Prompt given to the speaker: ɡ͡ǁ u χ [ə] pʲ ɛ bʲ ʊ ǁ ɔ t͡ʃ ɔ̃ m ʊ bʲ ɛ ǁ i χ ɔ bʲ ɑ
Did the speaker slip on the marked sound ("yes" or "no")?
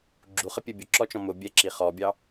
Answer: no